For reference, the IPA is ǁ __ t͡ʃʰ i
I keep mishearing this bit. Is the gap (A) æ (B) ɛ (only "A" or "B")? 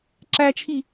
A